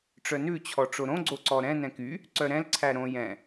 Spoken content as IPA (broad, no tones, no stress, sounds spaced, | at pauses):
ʈ͡ʂ œ n ʉ t͡ɕʰ ɔ ʈ͡ʂ o ɾ õ ɡ͡ǀ o ǀ ɔ ɾ ɛ̃ n ɛ̃ k y | ǀ œ ɾ ɛ̃ l ǀʰ æ ɾ õ j ɛ̃